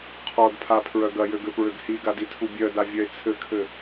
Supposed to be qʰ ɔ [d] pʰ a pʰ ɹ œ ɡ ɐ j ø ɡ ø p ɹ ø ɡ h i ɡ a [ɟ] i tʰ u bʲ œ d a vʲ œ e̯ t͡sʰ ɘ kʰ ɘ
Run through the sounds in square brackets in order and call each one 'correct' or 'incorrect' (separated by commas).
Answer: correct, incorrect